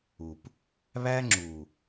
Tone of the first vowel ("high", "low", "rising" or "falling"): low